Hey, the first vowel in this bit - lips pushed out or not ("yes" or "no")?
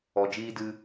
yes